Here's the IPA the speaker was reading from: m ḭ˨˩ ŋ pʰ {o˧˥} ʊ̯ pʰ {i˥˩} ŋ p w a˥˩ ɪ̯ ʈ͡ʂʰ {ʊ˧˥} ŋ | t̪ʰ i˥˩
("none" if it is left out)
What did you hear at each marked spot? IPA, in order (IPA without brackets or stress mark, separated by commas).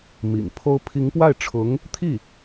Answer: o˥, i˧˥, ʊ˧˥